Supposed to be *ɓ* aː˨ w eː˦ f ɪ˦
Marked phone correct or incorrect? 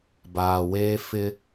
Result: incorrect